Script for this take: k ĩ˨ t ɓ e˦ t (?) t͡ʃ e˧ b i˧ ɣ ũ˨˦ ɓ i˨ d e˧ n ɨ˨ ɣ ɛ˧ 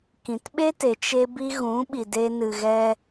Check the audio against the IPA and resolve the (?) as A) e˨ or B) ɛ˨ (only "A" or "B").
A